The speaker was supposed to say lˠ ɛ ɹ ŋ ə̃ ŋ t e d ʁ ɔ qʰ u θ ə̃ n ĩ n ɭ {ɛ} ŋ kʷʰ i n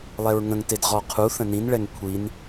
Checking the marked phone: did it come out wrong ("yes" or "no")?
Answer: no